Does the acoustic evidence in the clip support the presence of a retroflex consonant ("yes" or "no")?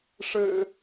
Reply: yes